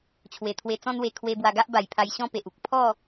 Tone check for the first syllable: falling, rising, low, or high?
low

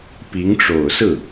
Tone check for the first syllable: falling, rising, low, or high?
rising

